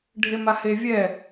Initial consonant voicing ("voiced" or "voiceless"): voiced